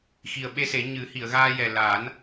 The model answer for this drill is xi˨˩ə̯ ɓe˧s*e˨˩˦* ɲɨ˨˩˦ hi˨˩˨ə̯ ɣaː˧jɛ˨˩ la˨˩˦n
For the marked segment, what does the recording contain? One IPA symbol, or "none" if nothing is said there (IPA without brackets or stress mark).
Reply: e˨˩˦